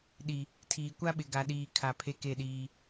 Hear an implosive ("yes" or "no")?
yes